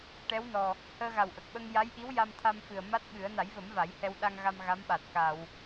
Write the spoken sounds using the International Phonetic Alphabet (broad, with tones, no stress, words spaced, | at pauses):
ʈɛ˧˥w nɔ˨˩ | həː˧ɣa˨˩wʔə˨˩k̚ɓə˧ŋ ja˧˥jʔi˧˥w ja˧mt̪ʰa˧mfɨ˨˩ə̯ ma˦˥t̚ɓɨ˨˩˦ə̯ na˨˩˦jvə˨˩˦m va˨˩˦jhɛ˧w ɗa˧ŋ ɣa˧m ɣa˧˥mɓa˨˩t̚ ka˨˩˨w